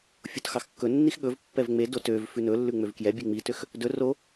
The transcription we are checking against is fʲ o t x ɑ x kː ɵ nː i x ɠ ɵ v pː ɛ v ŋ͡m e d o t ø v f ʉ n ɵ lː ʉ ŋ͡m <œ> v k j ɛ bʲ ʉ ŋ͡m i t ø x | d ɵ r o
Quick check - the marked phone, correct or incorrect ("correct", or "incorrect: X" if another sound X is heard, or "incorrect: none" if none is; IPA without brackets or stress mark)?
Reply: incorrect: ø